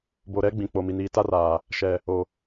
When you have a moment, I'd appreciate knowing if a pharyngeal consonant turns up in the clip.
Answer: no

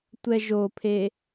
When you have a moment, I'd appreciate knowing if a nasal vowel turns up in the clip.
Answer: no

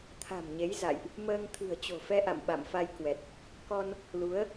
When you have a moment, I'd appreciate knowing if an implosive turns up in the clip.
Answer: yes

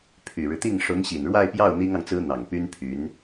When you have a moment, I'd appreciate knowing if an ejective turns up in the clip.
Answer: no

